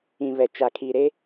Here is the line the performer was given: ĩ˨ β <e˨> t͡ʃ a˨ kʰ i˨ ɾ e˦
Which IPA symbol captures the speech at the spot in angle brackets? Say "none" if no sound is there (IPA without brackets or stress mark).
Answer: ɛ˨